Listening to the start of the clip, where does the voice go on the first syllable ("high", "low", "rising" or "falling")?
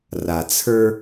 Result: low